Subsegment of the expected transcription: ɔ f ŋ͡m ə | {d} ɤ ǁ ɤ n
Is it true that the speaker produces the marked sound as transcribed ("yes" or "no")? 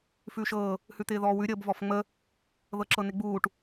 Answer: no